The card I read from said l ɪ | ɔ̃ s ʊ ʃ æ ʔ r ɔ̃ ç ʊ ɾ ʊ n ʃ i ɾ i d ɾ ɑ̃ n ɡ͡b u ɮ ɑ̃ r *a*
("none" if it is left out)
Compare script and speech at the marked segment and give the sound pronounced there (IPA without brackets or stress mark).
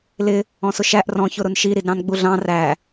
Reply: æ